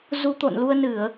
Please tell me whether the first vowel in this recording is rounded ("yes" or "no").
yes